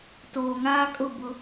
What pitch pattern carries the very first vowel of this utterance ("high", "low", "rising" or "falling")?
low